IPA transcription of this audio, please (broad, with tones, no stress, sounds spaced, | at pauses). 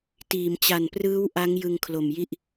t iː˩˦ m t͡ɕ a˨˩ n p r ɯː˦˥ w ʔ a˦˥ ŋ j ɯ˧ ŋ kʰ l o˨˩ m j i˥˩ ʔ